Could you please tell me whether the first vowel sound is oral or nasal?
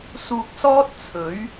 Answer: oral